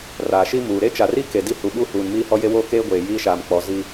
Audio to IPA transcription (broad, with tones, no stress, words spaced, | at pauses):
raː˨ʃi˦muː˨ ɾe˦t͡ʃa˨ri˦ ke˨ di˦hu˨ɓu˦huː˨n miː˦hɔ˦je˦woː˦ keː˦ɡʷeː˨ jiː˦ʃaː˨mk͡pɔ˨˦ zi˦